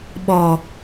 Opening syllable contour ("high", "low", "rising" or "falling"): low